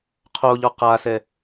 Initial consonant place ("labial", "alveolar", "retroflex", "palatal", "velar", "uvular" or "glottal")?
uvular